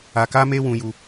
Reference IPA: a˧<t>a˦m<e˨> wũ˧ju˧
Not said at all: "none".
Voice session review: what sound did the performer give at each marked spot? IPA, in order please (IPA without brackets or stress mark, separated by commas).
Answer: k, e˦